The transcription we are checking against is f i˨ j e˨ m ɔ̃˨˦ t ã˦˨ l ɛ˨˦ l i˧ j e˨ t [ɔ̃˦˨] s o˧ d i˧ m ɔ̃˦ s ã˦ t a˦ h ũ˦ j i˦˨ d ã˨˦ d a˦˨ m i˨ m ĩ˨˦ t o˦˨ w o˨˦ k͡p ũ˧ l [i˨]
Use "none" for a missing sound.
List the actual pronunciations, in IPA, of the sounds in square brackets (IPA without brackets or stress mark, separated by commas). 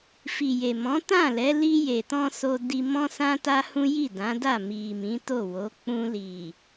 ɔ̃˧, i˨